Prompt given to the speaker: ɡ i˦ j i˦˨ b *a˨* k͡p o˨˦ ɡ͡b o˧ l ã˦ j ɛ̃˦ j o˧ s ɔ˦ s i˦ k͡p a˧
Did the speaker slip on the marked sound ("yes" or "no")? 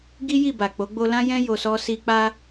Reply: no